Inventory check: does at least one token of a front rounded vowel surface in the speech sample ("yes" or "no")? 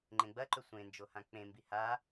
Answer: no